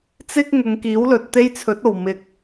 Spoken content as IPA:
t͡s ɪ˥ k̚ ŋ ʊ˨˧ ŋ k iː˨˥ w l ɵ˨ t̚ t̪ e˥ j t͡sʰ ɵ˨˥ t̚ o˨˩ w m ɪ˨ k̚

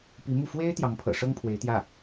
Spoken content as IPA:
p i˧˥ m u˥˩ f w e˥ ɪ̯ t̪ j ɑ˧˥ ŋ pʰ ɤ̰˨˩ ʂ ɤ˥ ŋ pʰ w e˧˥ ɪ̯ t̪ j ä˥˩

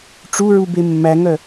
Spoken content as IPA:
ʈ͡ʂ u ɹ u b e mː æ ŋ œ

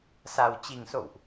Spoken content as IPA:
s a˨˩ w t͡ɕ i˨˩ ŋ s o̰˧˨ w ʔ

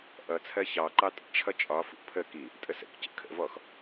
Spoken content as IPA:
ʔ ʌ t͡sʰ ɜ ç ɑ ǃ ɑ tʼ ə̰ t͡ʃʰ ʌ t͡ʃʼ ɒ f ṵ pʰ ə k i | tʼ ə s ə̰ k c ə̰ kʰ ə̰ v ɔ x

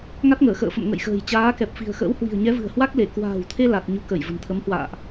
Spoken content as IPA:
ŋ a˦˥ t̚ ŋ əː˧˩ x ə̰ː˧˨ f ə̰˧˨ m ŋ ə̰˧˨ j x ə̤ː˨˩ j t͡ɕ aː˨˦ k ɛ˨˩ p̚ f i̤˨˩ ə̯ x ə̰ː˧˥ w h w i̤˨˩ ə̯ ɲ ɛ˨˦ v ɨ̤˨˩ ə̯ h w a˦˥ k̚ l e˧˩ k w a̤ː˨˩ w t̪ʰ e˧ l a˨˩ t̚ ɲ u˨˦ k ə˧˩ j v ə̤˨˩ n t̪ʰ ə˨˦ m h w a̰ː˧˨ ʔ

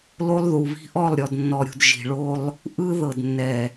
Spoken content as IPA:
l o˦ lˠ ð u˨ β i̤˦ ʔ ɔ˦˨ lˠ ɾʲ ɔ˨ d nː ɔ˨ ɾʲ ṳ˨ d ʒ i̤˨ ɭ o˦ lˠ | ʔ ɯ˦ ð ɤ˨ d nː ɛ˨

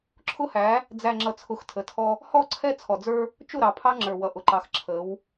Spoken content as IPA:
ǁʰ ʊ˦ h æ˨˦ | d͡z æ˨ ŋ͡ǁ ʌ˨ t͡sʰ ʊ˨ x tʰ ə˨ tʰ ɔ˦ | h ɔ˦˨ ǀʰ ɛ˦ t͡sʰ ɔ˨ d͡z ə˞˦ | t͡ʃ ʊ˦˨ ɾ ɑ˨ pʰ ɑ˦ ŋ͡ǁ ə˞˨ w ʌ˨ ʔ ʊ˨ ǃ ɑ˨ x ǁʰ ə˨˦ w

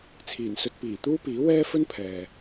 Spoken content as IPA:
t͡sʰ iː˨˩ n s ɵ˧ t̚ p iː˨˩ t̪ uː˥ p iː˨˥ w ɛː˥ f ɵ˥ n pʰ ɛː˨

